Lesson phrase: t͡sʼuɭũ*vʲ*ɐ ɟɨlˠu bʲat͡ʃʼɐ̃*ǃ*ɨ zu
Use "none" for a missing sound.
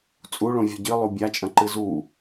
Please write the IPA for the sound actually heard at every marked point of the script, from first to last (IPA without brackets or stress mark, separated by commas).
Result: vʲ, ǃ